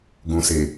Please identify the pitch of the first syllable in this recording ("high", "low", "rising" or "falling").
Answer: low